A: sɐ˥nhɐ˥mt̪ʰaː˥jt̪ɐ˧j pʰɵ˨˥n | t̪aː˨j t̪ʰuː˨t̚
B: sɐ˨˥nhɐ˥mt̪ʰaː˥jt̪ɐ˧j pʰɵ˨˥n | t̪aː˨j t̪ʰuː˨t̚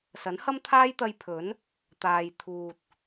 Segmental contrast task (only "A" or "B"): B